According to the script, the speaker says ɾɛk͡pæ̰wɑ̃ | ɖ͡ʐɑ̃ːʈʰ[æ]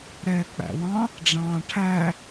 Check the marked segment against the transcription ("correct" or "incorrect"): correct